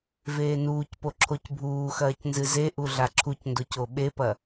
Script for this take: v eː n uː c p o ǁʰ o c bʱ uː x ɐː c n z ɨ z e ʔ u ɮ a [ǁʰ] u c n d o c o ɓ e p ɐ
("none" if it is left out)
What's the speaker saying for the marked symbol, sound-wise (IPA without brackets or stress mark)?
ǁʰ